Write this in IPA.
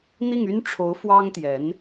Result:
n̪i˥˩ŋy˥nʈ͡ʂʰo˧˥ʊ̯ fwɑ˥ŋt̪jɛ˧˥n

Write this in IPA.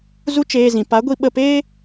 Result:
zu˦ t͡ʃeː˧zĩ˨ pa˨˦ɡʷi˧ ɓə˧peː˦

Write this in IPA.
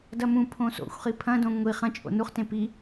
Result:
dɐmũpʰõ so̰xʷχi pʰɐ̃dõ ŋʷi χɐ̃ t͡ʃʼo̰nuχtẽ pi

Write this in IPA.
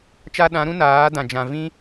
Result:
t͡ʃa˧ɗã˨˦ɾũ˦ naː˨˦dã˨ d͡ʒã˨vĩ˦

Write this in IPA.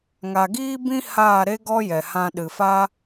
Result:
ŋa˨ɡiː˦bĩ˦ haː˦˨ɾe˦ ɡɔ˦jɛ˨hã˧ ɗɨ˨fa˦

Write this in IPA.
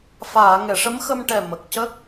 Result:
faː˨˩˨ ŋɛ˨˩˨ʂə˧˥mxə˧mʈɛ˨˩ mə˨˩k̚cə˦˥k̚

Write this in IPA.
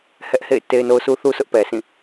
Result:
hɛ˦ʔhḛ˦˨ɪ̯ te˦ɪ̯no˦ʊ̯su˦θu˦ sʰʊ˦ʔpɛ˨sʰĩ˦˨

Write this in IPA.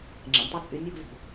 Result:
ŋ͡ǁɛ̰˨nʲtˤo˦ t͡sʼy˨˦nʲ wo̤˦zi̤˨

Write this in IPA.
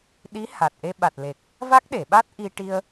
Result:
ɗi˧˥ha˨˩t̚ ʔe˧ɓa˨˩t̚ le˨˩k̚ | va˦˥k̚ɗe˨˩˨ɓa˦˥t̚ ʔi˧ʈi˧ə̯

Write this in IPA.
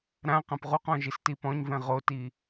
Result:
ɾã qãpʁuqɔ̃ ʒistipɔ̃ɲvɛ̃ ʁoti

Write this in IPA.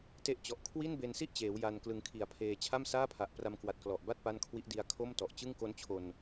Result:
te˦˥ʔt͡ɕɔ˨˩ʔ kʰwi˥˩nbe˧nsi˥˩ʔt͡ɕeː˩˦w ja˧nklɯ˧ŋkʰi˨˩a̯pʰeː˧ t͡ɕʰa˥˩msaː˥˩pʰa˨˩ʔ pra˧mkwa˨˩t̚klɔ˨˩ʔba˥˩t̚ pa˥˩nkʰwi˦˥ʔdi˦˥a̯ kʰo˥˩mtɔ˨˩ʔ t͡ɕɯ˥˩ŋko˦˥nt͡ɕʰo˧n

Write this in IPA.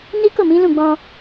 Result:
ni˦ko˦˨mĩ˨˦lũ˦˨ ɡ͡bɔ̃˧

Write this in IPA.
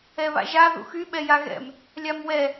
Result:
ɛβa̰ʒa ðṵxy ɓɛjaɣɛ̰m | lʲamwɛ

